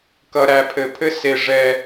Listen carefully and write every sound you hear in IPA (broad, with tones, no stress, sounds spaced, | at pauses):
k ʌ˨ ɾ æ˨ pʰ ɘ˨ pʰ ɘ˦ s e˨ ʐ ɛ˦